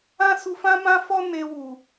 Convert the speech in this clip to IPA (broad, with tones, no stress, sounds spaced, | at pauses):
ã˦ s u˧ f ã˦ m ã˦ f ɔ˦ n e˧ w u˨